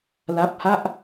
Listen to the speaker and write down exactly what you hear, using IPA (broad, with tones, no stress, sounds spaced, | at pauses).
l a˦˥ p̚ h a˥˩ ʔ